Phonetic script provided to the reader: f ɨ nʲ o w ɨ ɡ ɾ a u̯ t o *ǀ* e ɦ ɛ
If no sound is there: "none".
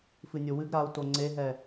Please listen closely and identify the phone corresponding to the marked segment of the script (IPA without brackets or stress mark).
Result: ŋ͡ǀ